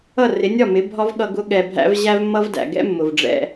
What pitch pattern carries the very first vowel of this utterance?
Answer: falling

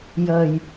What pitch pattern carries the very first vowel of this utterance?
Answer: low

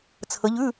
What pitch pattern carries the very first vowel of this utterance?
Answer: rising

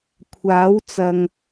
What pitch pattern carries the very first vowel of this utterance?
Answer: rising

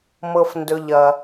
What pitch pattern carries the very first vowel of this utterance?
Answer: low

